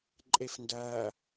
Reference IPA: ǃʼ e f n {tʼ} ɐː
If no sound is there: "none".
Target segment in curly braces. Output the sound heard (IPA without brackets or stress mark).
d